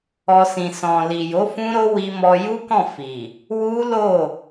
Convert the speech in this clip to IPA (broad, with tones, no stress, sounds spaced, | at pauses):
ɔ˧ s ĩ˨ s ɔ̃˨ l i˨ j o˨˦ f ũ˦ ɾ o˦ w i˧ m ɔ˧ j u˦ k ɔ̃˦˨ f i˨ | w u˦ l o˦˨